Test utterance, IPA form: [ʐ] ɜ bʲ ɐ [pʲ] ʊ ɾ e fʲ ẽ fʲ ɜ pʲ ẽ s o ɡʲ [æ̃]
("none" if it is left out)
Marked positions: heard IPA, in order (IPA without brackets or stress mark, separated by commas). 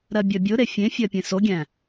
ɾ, bʲ, æ̃